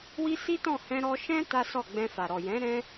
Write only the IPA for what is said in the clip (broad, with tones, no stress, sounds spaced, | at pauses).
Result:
w i˦ s i˦ t ɔ̃˦˨ h ɛ̃˧ ɾ ɔ˧ ʃ ɛ̃˦ t a˦ s ɔ˦˨ ɡ͡b ɛ̃˧ f a˨ ɾ ɔ˨ j ɛ̃˨˦ ɾ ɛ̃˧